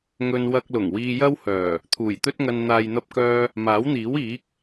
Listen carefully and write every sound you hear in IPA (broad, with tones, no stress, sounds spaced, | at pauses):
ŋ ɵ˧ n w ɐ˧ k̚ l ʊ˨˩ ŋ w iː˧ j ɐ˥ w h œː˨˩ | t̪ʰ uː˨˩ j t̪ ɵ˥ t̚ ŋ ɐ˧ n n̪ aː˨ j n̪ ɐ˧ p̚ k œː˧ | m aː˨˥ w n̪ iː˨˥ w iː˨˥ k̚